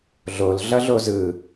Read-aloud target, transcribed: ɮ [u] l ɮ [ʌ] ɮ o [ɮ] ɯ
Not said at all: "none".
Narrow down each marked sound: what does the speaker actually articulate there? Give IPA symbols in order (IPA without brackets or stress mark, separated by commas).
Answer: o, ʌ, z